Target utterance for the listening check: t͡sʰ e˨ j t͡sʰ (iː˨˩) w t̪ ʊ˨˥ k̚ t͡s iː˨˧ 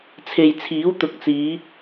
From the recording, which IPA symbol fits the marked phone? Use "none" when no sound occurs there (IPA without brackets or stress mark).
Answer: iː˨˥